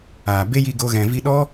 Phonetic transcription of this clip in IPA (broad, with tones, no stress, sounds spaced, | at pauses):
aː˨ b e˦ j i˧ ɡ o˧ ɣ ɛ̃˨ v i˧ ɗ ɔ˦